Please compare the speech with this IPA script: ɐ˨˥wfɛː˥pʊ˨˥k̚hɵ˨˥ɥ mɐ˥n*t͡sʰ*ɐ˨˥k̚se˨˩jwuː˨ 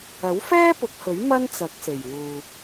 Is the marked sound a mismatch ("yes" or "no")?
yes